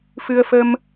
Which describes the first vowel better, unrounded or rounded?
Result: unrounded